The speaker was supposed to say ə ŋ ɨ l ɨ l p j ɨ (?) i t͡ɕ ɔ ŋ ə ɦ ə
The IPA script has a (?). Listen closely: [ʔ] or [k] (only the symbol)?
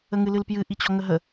ʔ